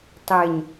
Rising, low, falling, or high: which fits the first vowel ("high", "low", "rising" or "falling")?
low